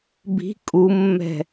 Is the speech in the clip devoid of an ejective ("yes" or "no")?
no